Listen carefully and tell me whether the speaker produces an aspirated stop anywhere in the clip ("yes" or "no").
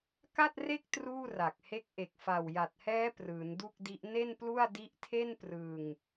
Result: yes